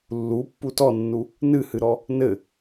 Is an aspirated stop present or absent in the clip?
absent